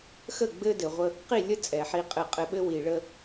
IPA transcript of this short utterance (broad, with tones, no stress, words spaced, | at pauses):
xə˦˨ɡ͡bɘ˦dɘ˨ʁʷə˦ | qi˦˨lʲə˦ t͡sʼɛ˨ħi˦qʼɘ˦˨qʼɘ˦ ɓɘ˦wi˨ɭə˦